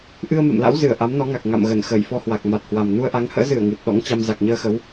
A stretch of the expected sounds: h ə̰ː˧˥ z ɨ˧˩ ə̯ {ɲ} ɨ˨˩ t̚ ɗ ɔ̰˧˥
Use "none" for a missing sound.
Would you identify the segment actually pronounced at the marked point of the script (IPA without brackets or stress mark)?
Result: ŋ